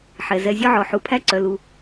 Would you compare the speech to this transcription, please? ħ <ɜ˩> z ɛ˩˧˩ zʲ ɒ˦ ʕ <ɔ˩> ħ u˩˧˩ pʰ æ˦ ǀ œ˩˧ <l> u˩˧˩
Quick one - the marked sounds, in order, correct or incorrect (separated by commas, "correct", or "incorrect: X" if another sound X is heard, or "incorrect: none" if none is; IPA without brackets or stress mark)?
incorrect: ɛ˩, correct, correct